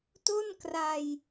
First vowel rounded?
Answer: yes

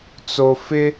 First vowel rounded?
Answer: yes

